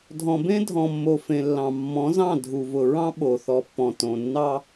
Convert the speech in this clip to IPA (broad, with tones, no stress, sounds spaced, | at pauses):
dʱ ɔ̃˨ b ẽ˦ dʱ ɔ̃˨ mː o˨ f ẽ˨ lː ɑ̃˨ mː ɔ̃˨˦ z ɑ̃˦˨ dʱ u˨ v ʊ˨ ɹ ɑ̃˦ ɓ o˨ θ ɔ˨ pː ɔ̃˨ t õ˨ nː ɑ˦